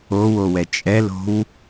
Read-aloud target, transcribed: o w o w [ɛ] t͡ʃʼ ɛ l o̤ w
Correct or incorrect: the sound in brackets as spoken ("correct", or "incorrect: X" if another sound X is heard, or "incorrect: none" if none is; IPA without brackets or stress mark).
correct